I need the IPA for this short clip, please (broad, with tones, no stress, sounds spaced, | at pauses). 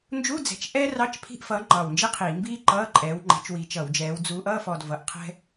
n d͡ʒ u˧˥˧ d͡z ɛ̤˧˩ t͡ʃ ʔ ɛː˥ r ɑ˧˥˧ t͡ʃ pʰ i̤˧˥˧ ʔ f ʌː˨˦ ŋ͡ǃ ɑ˧˩ w n d͡ʒ i˥ qʰ iː˧˩˧ m b iː˥ ǃ ʌː˧˥˧ ǃʼ ɛː˨˦ w ŋ͡ǃ ɛ̤˨˦ t͡ʃ w i˨˦ t͡ʃ ʌ˧˩˧ w d͡ʒ ɛː˨˦ w d͡z uː˨˦ ʔ ʌː˧˥˧ f ɔ˧˩ d v ʌ˨˦ ʔ qʰ ɛ̤˥